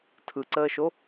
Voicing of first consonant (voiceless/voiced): voiceless